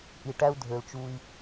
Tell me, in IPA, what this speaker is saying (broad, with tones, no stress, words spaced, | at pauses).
ʔi˨ ʈæ˦u̯dʱø˨l t͡ʃu˦i̯